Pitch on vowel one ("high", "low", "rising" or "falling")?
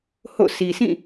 falling